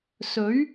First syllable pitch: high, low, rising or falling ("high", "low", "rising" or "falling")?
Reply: rising